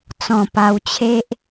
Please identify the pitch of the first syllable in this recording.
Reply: low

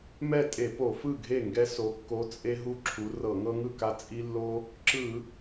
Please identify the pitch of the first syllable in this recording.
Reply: falling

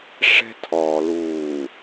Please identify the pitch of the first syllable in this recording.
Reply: high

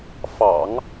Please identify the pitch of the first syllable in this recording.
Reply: low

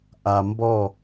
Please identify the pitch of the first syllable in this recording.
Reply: low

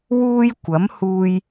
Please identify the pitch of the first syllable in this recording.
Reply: high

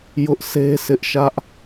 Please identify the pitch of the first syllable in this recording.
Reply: high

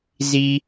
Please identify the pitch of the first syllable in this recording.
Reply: low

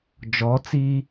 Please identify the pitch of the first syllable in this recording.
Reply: rising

